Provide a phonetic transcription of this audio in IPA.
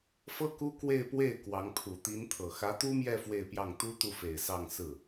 f ɤ˥ k u˥ k w e˥˧ ɪ̯ p w e˥˩ ɪ̯ k w ɑ˧˥ ŋ pʰ u˨˩ t̪ i˧˥ n t̪ʰ ɤ˨˩ x ä˧˥ t̪ u˥ m j ɛ˥˧ f w e˥˧ ɪ̯ p j ɑ˥˩ ŋ t̪ u˥ t̪ u˥˩ f e˨˩ ɪ̯ s ɑ˥˧ ŋ s ɹ̩˥˩

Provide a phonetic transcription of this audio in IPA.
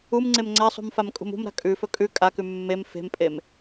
u m ŋ͡ǀ e m ŋ͡ǀ a sˤ ṳ m f a m kʼ ṳ m ṳ m ɾ a̤ kʼ ʉ f ɵ kʼ ʉ kʼ a k ʉ mː e m f e̤ m pʼ e m

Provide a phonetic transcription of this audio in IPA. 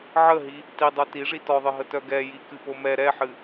ʕ ə ɦ i | t i dˤ œ t i ʐ i t ɔ ðˤ ɨ ɦ ə t œ ɡ ɛ j i k ɨ p o m ɛ ɾ ɛ ħ ɨ

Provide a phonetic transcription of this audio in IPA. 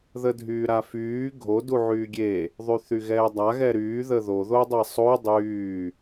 ð ə dʱ yː ɾ a f yː ɡʱ o d u ʕ yː ɡʲ e | ðˤ y θ y ɣ ɛː dˤ a ɣ ɛ ɾ yː ð ə ð o ð o dˤ e sˤ o dˤ yː

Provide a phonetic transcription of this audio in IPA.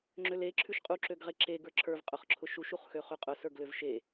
ŋ͡ǁ ø l e ǁʰ ʉ ʃ qʼ u ǁ ø ɡ ʁ e ǁ e ɡ ə˞ ǁʰ ə˞ v qʼ ʊ χ ǁʰ ʊ ʃ u ʃ u χ x ø χ ʉ qʼ ʊ s ə˞ ɡ l ø v ʃ e

